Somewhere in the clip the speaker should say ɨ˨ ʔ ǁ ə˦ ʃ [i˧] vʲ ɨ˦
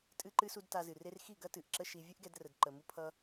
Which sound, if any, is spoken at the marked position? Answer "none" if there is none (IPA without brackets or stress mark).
i˧